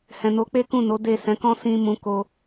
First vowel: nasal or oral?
nasal